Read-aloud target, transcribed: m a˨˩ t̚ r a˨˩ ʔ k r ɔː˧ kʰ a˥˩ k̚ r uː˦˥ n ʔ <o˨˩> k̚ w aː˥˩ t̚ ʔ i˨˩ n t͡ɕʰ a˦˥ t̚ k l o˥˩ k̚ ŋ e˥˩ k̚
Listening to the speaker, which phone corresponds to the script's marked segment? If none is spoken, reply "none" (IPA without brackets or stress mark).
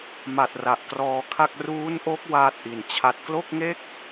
o˦˥